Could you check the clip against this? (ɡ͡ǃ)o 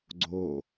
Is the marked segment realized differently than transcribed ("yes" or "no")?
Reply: yes